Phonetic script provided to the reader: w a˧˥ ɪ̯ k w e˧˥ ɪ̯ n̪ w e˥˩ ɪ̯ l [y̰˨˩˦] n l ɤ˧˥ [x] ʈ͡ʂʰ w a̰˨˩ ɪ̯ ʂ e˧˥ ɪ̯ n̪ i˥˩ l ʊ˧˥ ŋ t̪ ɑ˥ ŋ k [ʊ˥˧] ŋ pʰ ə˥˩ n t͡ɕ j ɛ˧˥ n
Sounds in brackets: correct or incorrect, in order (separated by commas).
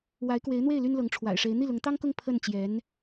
incorrect, incorrect, correct